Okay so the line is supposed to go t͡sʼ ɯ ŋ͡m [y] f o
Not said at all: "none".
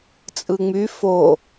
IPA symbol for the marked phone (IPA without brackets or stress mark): y